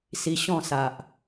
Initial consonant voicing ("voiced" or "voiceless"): voiceless